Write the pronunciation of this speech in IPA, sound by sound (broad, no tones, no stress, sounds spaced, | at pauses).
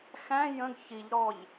x æ̃ j ə̃ ɡ ç i ʎ ɾ ɔ ʎ